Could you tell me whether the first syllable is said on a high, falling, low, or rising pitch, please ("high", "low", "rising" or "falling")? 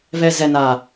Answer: low